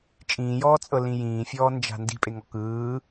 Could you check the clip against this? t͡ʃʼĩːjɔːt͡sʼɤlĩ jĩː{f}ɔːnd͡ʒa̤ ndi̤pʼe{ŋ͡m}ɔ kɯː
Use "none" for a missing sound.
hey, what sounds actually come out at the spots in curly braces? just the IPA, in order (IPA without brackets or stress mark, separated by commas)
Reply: fʲ, ŋ